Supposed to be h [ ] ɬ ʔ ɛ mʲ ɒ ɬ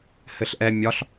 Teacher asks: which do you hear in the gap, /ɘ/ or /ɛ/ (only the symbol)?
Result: ɘ